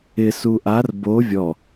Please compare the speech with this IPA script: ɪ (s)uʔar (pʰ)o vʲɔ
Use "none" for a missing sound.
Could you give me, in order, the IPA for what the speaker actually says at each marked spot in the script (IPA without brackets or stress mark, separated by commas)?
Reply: s, b